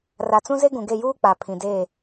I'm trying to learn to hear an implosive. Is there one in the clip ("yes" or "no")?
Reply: no